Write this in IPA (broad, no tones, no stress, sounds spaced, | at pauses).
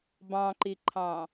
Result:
b ɑ̃ ǃ i ǃʰ ɑ̃